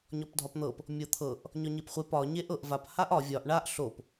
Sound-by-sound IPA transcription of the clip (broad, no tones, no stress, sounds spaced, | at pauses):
ɲ ɒ p dʱ ɒ p n̪ ɤ p | mʲ ɤ t̪ʰ ɤ ʔ | ɲ ɒ ɲ e p χʷ e p ɒ ɲ e ʔ ɤ ʔ v a p h a ʔ ɒ vʲ ɒ ʔ ɳ a ʔ ɬ o p